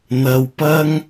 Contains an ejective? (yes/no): no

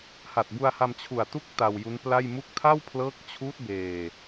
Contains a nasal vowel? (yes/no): no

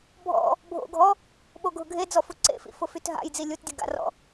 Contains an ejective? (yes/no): no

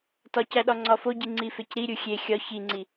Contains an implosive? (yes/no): yes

